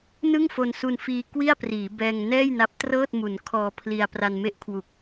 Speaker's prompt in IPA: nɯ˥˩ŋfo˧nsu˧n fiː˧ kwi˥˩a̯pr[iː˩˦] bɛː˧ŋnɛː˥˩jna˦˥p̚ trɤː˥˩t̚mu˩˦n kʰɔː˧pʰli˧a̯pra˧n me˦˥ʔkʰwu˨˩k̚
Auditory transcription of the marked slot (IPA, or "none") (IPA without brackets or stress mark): iː˩˦